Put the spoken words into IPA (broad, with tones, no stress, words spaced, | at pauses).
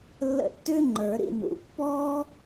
lːə̰˦˨tːʏː˥ŋ͡ǃə˞˨˩˦ ɾḭ˦˨nṵ˨˦ pːɔː˥